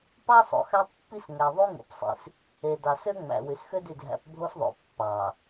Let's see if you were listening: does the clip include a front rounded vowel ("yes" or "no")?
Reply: yes